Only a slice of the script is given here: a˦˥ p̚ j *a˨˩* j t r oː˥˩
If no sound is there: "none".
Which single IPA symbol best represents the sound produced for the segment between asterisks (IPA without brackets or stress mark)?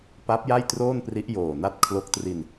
a˥˩